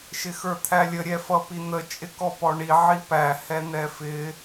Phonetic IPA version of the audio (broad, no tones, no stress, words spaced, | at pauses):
ʃɪxə˞t̪ʰælʲə ɾʲɛfʌpin̪ə t͡ʃʼɪkɔpɔɳi ʕipæ hɛn̪ɛfɪ